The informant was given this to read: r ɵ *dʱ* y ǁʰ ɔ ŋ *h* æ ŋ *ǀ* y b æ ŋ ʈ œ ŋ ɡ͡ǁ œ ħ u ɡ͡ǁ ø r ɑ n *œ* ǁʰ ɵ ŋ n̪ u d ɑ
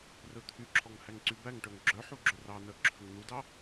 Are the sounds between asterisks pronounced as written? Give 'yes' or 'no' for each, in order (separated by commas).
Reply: no, yes, yes, yes